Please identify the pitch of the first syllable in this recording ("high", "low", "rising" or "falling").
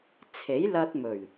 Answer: rising